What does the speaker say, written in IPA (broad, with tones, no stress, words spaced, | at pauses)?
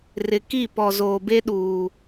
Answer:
rɪ˨ki˦˨pɔ˨zoː˨ be˦ɗuː˨